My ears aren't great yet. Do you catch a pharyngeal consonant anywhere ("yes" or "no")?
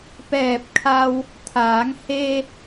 no